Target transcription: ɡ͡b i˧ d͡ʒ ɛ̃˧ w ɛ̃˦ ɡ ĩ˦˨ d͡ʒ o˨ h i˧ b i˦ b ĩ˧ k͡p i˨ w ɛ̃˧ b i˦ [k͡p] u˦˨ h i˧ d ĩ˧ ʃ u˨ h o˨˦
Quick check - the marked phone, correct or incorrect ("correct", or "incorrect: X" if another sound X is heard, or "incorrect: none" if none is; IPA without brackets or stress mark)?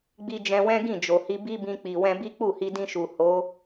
correct